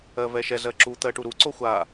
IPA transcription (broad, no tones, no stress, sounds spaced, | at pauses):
ɜ v ɛ ʃ ɛ z ɜ ǁ u t̪ ɜ ʈ u ɾ u ǀ o xʷ a